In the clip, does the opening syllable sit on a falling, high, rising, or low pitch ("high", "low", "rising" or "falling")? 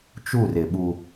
falling